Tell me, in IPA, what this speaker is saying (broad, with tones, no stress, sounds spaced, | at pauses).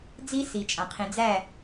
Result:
d͡z i˦ s i˨ t͡ʃʼ ã˨ qʰ ĩ˨ d͡z æ˦˨